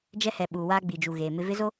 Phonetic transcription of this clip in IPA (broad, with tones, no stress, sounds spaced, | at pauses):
d͡ʒ ɛ˦ h ɛ˨ ɓ uː˨ w aː˦ ɡ͡b i˨ d͡ʒ u˨ ɣ eː˨ m ɪ˦ v ɪ˦ z o˦